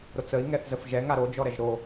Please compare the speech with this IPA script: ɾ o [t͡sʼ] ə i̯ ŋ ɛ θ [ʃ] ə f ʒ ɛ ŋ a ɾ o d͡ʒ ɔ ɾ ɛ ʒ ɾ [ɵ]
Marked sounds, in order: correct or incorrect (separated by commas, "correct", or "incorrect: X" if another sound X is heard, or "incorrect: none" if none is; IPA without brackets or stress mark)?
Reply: incorrect: t͡s, incorrect: z, incorrect: o